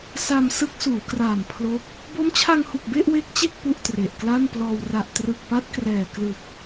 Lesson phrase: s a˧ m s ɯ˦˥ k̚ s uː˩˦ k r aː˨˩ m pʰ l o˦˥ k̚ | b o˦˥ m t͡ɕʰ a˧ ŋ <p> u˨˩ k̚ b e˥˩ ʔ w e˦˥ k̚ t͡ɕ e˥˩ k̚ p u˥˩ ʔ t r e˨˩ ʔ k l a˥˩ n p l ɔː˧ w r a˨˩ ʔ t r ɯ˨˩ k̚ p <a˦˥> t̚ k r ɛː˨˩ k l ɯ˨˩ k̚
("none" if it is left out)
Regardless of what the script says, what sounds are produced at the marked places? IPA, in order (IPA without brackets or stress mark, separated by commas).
h, a˦˥